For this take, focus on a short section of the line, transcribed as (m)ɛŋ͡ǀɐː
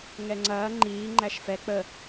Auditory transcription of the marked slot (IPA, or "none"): ŋ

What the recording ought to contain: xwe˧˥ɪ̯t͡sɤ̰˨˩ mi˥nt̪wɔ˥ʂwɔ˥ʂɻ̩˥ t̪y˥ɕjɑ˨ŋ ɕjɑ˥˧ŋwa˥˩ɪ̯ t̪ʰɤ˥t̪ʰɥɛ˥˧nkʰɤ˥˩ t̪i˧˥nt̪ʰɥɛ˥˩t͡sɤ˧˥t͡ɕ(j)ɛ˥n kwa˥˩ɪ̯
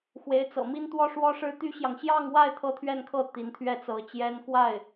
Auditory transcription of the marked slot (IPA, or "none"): j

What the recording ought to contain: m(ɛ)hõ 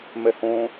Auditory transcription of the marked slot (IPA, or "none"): ɛ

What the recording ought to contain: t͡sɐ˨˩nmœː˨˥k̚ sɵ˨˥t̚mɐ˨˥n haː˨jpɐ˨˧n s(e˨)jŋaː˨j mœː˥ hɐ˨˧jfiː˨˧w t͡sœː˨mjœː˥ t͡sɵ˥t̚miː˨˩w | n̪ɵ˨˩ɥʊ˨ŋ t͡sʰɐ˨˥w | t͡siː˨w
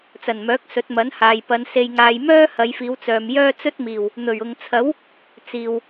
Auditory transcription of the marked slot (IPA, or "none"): e˨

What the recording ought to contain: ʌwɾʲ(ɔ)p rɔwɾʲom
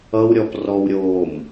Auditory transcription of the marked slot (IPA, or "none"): ɔ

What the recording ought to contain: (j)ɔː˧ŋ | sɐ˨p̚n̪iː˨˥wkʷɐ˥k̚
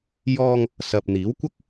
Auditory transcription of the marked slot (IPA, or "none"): j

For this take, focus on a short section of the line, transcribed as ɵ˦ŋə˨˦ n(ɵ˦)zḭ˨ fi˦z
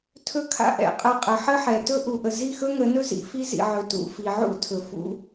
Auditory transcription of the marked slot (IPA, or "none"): ɵ˦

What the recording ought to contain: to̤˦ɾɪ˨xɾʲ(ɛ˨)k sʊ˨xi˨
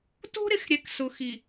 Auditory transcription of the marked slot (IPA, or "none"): ɛ˨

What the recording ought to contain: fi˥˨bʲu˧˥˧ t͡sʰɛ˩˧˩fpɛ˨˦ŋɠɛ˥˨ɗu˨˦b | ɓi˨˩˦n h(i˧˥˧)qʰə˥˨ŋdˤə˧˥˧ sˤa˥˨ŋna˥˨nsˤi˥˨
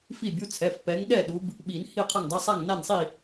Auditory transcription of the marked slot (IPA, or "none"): i˥˨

